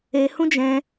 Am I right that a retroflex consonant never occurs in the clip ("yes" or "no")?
yes